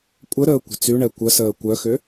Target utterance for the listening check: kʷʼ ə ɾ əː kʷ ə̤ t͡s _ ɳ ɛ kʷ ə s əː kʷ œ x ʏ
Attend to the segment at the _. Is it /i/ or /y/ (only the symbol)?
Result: y